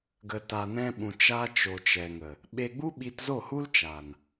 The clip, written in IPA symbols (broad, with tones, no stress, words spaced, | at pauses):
ɡə˨ta˨nɛ̃˧ɓũ˨ t͡ʃa˧t͡ʃo˨t͡ʃɛ˨ŋə˨ | ɓe˧ɡ͡bu˦ɓi˧t zo˦˨hu˦l t͡ʃa˨n